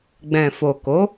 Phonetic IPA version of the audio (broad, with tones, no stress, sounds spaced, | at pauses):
ɡ͡b ɛ̃˨ f o˨ k o˨˦